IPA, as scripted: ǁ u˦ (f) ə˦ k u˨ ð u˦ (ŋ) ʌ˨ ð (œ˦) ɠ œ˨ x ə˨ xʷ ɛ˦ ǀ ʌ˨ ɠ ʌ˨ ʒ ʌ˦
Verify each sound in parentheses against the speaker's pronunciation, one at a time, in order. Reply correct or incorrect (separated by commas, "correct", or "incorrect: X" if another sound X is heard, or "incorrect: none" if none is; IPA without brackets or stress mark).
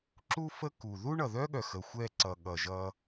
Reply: correct, incorrect: ɳ, correct